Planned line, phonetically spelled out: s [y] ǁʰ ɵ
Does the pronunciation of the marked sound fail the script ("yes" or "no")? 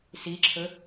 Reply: yes